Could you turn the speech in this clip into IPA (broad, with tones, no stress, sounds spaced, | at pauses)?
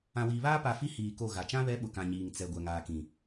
ã˨ w iː˨ β aː˦ p a˨ f i˦ h iː˨ k o˦˨ ɣ a˨ t͡ʃ ã˦ β ɛ˨˦ ɓ ʊ˨ k ã˨ ɲ iː˨ ŋ t͡s ɛ˨ ɡʷ ɛ˨ ŋ aː˨ k ĩ˨